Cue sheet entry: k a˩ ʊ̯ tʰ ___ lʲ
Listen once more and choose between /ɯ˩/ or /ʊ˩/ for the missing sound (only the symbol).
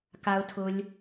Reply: ʊ˩